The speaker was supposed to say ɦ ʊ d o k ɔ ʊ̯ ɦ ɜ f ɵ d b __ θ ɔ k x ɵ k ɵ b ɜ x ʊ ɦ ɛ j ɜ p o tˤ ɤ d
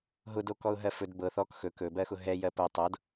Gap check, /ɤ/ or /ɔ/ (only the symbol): ɤ